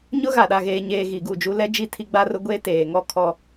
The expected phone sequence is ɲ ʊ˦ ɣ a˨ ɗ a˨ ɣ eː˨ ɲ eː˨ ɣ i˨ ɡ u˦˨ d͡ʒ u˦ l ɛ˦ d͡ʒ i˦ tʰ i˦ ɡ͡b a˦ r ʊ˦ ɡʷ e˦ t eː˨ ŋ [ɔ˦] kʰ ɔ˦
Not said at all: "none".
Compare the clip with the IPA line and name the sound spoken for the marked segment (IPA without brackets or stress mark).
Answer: ɔ˦